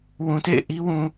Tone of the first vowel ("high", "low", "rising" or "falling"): low